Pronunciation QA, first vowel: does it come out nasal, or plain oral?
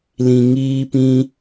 nasal